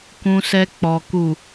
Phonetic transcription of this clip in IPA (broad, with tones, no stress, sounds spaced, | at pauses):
k ũ˨ s ɛ˨ k͡p ɔ˨ k u˨